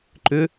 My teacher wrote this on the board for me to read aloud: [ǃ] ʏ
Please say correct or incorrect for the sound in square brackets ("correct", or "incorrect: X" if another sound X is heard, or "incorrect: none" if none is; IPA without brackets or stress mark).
correct